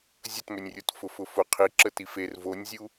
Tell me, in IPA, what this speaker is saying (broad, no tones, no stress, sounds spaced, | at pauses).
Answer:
zʲ ə t m ø nʲ rʲ o t f ʊ f ʊ f ʊ qʰ i ǁ ə t i f e r v o nʲ zʲ u